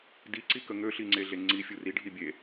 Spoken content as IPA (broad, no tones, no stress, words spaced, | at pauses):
di ǀikəŋø ɬiŋ͡ǀeɮeŋ͡ǀi fʲuri ɖʱibʲe